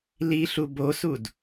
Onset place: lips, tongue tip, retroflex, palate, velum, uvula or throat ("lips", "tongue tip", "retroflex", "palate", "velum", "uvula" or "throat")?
tongue tip